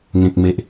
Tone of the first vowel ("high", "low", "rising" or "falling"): low